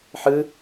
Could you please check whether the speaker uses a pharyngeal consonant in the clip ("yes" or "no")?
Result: yes